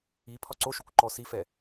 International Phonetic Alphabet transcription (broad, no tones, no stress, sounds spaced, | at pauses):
i pʰ ɒ ǀ o ʃ o kʷ ǃ ɔ s i f ɛ